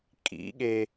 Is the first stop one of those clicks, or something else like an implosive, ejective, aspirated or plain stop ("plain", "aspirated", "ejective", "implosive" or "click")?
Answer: ejective